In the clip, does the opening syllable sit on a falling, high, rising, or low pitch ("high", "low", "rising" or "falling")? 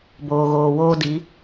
low